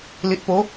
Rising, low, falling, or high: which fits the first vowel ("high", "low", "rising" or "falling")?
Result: low